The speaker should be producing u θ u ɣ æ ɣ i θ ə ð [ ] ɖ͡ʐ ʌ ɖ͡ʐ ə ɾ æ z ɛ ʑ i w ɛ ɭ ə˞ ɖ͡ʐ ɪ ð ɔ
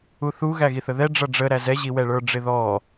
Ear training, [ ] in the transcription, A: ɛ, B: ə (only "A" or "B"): A